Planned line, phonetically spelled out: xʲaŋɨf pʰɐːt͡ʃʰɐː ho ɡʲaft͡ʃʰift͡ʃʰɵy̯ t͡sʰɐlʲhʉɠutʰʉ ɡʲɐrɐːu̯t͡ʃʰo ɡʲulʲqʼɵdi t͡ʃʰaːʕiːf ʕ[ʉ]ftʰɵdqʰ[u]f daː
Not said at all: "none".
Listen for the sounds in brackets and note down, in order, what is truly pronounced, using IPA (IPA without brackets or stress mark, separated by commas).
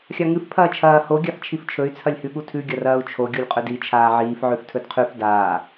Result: ʉ, ʉ